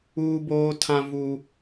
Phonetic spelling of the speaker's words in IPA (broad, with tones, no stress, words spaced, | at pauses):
uː˦boː˦tʰã˦ vu˦